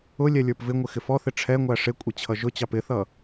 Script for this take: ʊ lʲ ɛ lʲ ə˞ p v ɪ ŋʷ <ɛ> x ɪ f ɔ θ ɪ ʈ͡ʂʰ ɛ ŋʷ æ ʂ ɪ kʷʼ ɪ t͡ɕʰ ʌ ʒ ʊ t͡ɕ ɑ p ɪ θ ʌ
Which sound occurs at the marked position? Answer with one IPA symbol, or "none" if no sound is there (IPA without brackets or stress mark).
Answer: ɪ